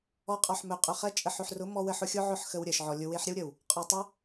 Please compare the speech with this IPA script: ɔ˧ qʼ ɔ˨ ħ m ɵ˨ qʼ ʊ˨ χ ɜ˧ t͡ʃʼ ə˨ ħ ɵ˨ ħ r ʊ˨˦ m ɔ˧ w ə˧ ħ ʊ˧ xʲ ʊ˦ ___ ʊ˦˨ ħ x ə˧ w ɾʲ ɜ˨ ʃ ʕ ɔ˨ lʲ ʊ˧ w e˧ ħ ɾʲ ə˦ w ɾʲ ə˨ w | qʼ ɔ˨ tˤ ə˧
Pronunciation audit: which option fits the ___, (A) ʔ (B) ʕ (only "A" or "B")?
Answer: B